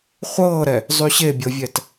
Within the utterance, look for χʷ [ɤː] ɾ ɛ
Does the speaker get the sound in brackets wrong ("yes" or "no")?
no